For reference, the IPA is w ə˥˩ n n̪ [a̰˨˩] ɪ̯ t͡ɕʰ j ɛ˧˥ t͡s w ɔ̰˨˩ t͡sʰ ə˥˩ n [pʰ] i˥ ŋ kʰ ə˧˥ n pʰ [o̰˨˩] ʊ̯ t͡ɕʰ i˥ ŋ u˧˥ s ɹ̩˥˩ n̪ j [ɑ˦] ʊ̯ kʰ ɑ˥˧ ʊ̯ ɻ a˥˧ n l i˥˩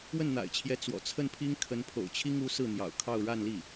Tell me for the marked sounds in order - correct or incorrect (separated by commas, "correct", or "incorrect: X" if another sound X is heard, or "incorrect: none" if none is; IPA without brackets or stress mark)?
correct, correct, correct, incorrect: ɑ̰˨˩